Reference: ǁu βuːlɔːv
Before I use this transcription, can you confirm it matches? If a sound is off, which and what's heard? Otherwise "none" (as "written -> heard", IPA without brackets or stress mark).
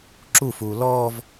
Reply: β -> f